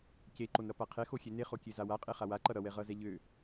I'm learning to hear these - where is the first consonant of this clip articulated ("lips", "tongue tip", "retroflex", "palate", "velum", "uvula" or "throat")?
palate